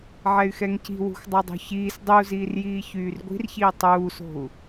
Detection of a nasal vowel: absent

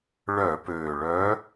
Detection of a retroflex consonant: present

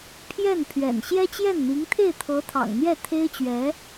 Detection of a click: absent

